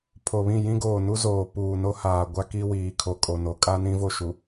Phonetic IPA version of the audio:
pʰ o˨ β ĩ˦˨ j ĩ˦ ɡ oː˨ n u˦ z oː˨ p uː˨ n o˦ h aː˨ ɡʷ a˦ k i˦ w iː˨ kʰ o˨ kʼ o˨ n o˨ kʼ a˦ n ĩ˦ v o˦˨ ʃ u˨

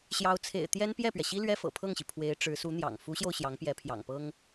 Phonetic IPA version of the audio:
ɕ j ɑ˧˥ ʊ̯ t͡sʰ ḛ˨˩ ɪ̯ t̪ j ɛ˥ n p j ɛ˥˩ p ɥ ɛ˩ ɕ i˥ l ɥ ɛ˥ f ɤ̰˨˩ pʰ ɤ˥˩ ŋ ɕ i˩ pʰ w e˧˥ ɪ̯ ʈ͡ʂ ɻ̩˧˥ s u˧˥ n̪ j ɑ̰˨˩ ŋ f u˧˥ ɕ j o˧ ʊ̯ ɕ j ɑ˧˥ ŋ p j ɛ˧˥ pʰ j ɑ̰˨˩ ŋ p ɤ˥ ŋ

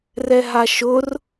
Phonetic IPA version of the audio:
r ɛ ɦ a ʃ ʊ r

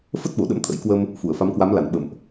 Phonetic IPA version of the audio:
f ə˦˥ t̚ ɓ o˧˩ ɗ ə̰˧˥ m t̪ʰ ə̰˧˥ j k w ə˧ m | f u˧˩ ə̯ f a˨˦ m k w a˨˦ m l a˧˩ n ɓ ə̰˧˨ m ʔ

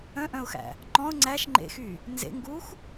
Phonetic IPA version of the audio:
œ̃ ʔ œ̃ ʊ̯ x æ̰ | ŋ͡ǃ ɔ̃ ʊ̯ ŋ͡ǀ æ ʃ ŋ͡ǃ ḛ x y | n z ḛ ŋ ɡ u x

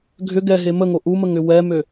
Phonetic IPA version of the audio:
ɡʱ ʏ ɡ ɛ ɦ e m ə ŋ o ʔ u m ə ŋ ʏ w ɛ m ø

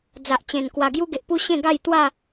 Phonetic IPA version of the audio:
d͡z a˨ ʔ t͡ɕ ẽ˨˩ n k w a˨˩ ɡ j u˦ ɡ e˨ ʔ p u˦ ɕ ẽ˥˧ ɡ a˥˧ j t̪ w a˥˧

